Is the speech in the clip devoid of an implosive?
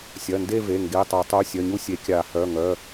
yes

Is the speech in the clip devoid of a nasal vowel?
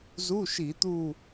yes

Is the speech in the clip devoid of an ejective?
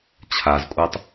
no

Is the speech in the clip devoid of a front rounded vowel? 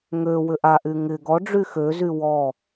no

